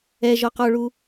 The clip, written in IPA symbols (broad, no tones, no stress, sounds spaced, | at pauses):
ɛ ʒ ɔ q ɔ ɭ u